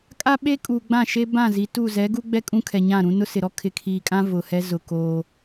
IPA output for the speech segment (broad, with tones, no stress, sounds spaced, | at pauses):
kʼ a˦ ɓ e˦ kʼ uː˨ ɡ͡b ã˦˨ ʃ e˦ b ã˦˨ z i˨ t u˦˨ z ɛ˨˦ ɡ u˦ ɡ͡b ɛ˦ kʼ ũ˦ kʰ ɛ˨ ɲ ã˦˨ ɾ ũ˦ n ʊ˦ s ɪ˨ ɾ ɔ˦ kʰ ɪ˨ kʰ iː˨ kʼ ã˦ v ʊ˨ h ɛ˦ z ʊ˨ k oː˦